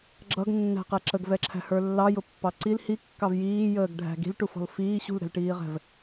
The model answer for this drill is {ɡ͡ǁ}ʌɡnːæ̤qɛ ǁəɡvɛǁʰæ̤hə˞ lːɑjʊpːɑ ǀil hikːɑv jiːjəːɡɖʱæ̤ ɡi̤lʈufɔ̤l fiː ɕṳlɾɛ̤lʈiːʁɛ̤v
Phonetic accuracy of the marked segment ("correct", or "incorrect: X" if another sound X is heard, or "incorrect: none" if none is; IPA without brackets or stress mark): correct